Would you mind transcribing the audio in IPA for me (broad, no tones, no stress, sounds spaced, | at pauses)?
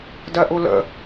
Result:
d ɜ ʔ u l ə̰